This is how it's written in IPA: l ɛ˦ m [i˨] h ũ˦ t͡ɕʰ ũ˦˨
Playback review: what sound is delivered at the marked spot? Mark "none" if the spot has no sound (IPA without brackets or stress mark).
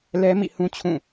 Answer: ḭ˦˨